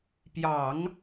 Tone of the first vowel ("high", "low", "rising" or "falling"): low